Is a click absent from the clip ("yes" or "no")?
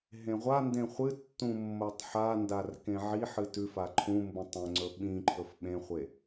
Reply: no